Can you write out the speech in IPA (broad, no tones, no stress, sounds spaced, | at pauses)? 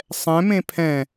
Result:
sˤ ɛ̃ m ẽ pʰ ɛ̃